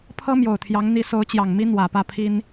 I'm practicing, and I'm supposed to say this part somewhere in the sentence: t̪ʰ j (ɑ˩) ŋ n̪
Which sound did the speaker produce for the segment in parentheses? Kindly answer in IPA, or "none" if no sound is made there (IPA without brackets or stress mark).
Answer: ɑ˧˥